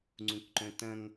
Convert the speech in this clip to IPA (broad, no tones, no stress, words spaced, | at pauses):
ŋ͡ǀũkǃœ̃tɐ̃ŋ